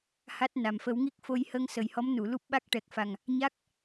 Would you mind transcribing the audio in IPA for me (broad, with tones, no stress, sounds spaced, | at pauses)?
h a˦˥ t̚ n a˨˩ m f ə˨˩˦ w ŋ i˦˥ k̚ f o˧ j h ə˧ ŋ s ə˨˩ j h ɔ˧˥ m n u˨˩˨ l u˦˥ p̚ ɓ a˦˥ k̚ ʈ ɛ˨˩ k̚ f a˨˩ ŋ | ɲ a˦˥ k̚